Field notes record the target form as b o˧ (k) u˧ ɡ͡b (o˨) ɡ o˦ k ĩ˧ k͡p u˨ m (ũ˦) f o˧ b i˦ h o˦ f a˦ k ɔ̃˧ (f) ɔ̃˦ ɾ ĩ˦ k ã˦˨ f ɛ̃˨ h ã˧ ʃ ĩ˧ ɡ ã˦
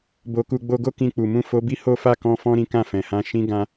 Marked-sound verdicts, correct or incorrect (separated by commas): correct, incorrect, incorrect, correct